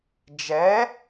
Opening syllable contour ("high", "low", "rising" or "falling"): rising